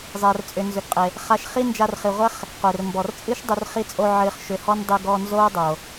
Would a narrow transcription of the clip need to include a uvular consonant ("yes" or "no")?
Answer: yes